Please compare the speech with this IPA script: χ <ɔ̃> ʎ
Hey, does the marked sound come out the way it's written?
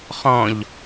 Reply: yes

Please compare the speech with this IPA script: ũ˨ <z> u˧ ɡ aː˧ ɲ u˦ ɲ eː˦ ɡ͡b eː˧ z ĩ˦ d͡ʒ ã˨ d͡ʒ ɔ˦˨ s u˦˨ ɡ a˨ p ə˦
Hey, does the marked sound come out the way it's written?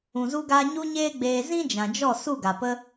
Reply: yes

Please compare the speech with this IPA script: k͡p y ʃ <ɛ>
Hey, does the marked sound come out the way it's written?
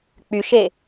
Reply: no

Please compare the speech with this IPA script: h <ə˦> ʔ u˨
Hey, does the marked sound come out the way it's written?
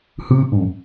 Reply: no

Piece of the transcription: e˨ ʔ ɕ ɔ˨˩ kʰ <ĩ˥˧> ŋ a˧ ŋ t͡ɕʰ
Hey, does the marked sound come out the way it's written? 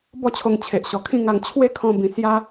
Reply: yes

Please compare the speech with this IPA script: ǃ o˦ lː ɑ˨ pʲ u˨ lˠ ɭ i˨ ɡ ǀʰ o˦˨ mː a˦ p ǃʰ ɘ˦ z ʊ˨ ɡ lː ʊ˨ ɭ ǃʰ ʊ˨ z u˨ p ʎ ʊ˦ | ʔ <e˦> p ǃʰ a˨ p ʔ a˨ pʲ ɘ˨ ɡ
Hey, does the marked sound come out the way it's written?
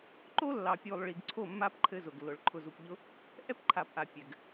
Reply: no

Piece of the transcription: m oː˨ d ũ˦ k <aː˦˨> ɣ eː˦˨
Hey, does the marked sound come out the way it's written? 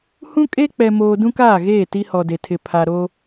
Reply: yes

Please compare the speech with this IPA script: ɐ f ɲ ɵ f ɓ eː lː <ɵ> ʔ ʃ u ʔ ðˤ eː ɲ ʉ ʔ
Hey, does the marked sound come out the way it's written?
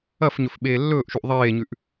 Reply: no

